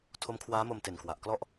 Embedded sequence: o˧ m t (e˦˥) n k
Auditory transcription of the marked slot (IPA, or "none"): e˨˩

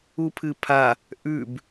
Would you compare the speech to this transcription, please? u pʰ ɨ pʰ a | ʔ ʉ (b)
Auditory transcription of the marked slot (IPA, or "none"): b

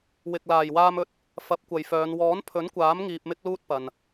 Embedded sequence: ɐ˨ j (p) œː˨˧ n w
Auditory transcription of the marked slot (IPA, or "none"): f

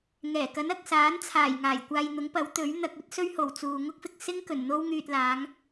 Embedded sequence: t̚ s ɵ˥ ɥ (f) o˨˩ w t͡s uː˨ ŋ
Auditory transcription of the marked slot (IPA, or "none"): h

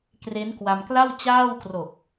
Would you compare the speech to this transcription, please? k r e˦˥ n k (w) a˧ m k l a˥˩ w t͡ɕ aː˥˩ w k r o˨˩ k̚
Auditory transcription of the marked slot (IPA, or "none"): w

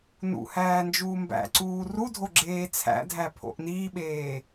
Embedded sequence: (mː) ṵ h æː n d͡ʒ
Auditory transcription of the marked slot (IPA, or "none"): n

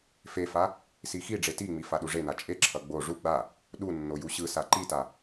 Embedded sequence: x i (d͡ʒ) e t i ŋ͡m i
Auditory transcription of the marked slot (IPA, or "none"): ɖ͡ʐ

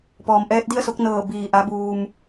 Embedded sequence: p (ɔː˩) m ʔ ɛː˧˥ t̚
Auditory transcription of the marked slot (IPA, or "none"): ɔː˩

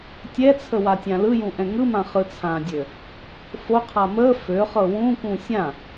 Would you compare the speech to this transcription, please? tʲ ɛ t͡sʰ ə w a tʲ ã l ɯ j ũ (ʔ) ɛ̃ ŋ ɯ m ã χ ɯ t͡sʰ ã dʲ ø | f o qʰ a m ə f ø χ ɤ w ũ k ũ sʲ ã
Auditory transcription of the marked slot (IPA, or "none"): ʔ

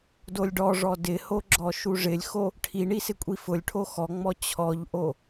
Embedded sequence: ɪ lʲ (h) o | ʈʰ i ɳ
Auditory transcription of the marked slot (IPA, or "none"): x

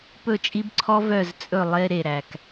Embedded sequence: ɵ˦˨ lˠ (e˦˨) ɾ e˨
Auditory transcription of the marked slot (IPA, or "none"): e˦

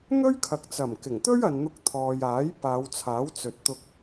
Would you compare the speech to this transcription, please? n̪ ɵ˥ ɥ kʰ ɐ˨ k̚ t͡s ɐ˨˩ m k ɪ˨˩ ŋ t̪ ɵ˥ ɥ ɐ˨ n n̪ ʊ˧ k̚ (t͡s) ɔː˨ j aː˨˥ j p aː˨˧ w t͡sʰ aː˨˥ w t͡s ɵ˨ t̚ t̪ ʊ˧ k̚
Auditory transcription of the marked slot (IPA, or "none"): t̪ʰ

